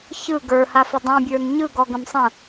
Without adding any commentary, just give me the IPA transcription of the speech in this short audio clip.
ç ɯ ɡ ə˞ h a f ɘ dˤ ũ bʲ ə˞ n ɲ ɯ ɡ ɔ ɡ ə̃ m sˤ ə̃

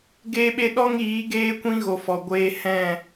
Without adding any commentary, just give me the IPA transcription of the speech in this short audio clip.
ɡ eː˧ ɓ e˧ ɗ ɔ˦ ŋ iː˨˦ ɡ eː˦ kʷ ĩ˦ ɣ o˨ f ɔ˨ ɡʷ eː˧ h ɛ̃˦˨

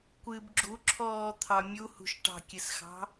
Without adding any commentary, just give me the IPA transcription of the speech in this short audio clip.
kʷ ɨ b ɡ͡ǁ u ǁʰ ɔː t̪ʰ ɑ mʲ u h ṳ ʃ ʈ ɑ̤ kʲ ɨ s x ɑ̤

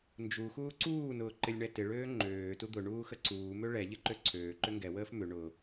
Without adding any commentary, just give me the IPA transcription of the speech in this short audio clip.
n d͡ʒ u x uː ǀ uː n ʊː ǃ ɪ lʲ ɳ ɛ t ɪ ɭ øː ŋ͡ǃ øː t u d̪ ʊ ɳ uː x ə ǀ uː m ø ɭ ɛ ʎ ɪ ǃ ø ǀʰ øː ǃ ʏ ŋ ɡ ɛ w əː f m ʏ ɳ ʊ

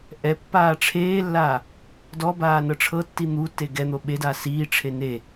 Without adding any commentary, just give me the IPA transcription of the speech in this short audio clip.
ʔ ɛ pː aː ʈ͡ʂʰ eː lː aː | d ɔ b aː n ɤ ʈ͡ʂʰ ɤ tː i n̪ u tː e ɡ ɛ n̪ o ɓ e d aː s iː ʈ͡ʂʰ e n e

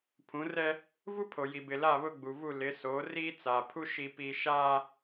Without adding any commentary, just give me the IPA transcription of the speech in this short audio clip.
pʰ ũ˨˦ r ɛ˦ | v u˦ pʰ o˨ j i˨ b ɪ˨ l a˦˨ β ʊ˦ ɡ͡b u˨ v u˦˨ l ɪ˨˦ s oː˨˦ r iː˦ t͡s a˨ pʰ u˦ ʃ i˦ p iː˦ ʃ aː˦

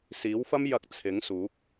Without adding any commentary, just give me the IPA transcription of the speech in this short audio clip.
s iː˨˥ w f ɐ˥ m j ɐ˧ k̚ t͡sʰ ɪ˨˥ ŋ s uː˨˥ k̚

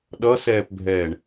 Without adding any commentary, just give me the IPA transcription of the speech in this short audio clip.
ɗ ʌ s ɛː p bʱ ɛː ɳ

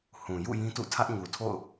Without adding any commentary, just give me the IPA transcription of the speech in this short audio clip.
h ũ˨ j ṵ˦˨ j ĩ˦ t ṵ˦˨ tʰ ä˦ ʔ ɲ u˨ tʰ o̰˦˨ ʊ̯

